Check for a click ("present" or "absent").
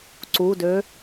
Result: present